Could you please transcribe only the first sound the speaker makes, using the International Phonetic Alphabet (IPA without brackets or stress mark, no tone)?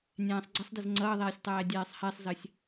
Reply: nʲ